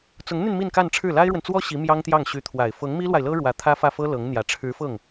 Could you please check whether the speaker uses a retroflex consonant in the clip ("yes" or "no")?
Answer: yes